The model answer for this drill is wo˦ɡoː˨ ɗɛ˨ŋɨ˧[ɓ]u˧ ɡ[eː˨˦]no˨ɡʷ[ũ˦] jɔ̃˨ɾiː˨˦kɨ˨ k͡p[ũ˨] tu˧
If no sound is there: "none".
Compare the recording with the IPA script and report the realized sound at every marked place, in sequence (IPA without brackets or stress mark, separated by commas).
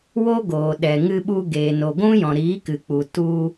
ɓ, eː˨, ũ˦, u˨